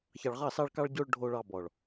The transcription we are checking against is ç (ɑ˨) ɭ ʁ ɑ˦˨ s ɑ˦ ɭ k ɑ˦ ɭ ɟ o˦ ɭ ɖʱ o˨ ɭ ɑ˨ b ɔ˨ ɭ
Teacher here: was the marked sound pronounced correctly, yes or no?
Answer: yes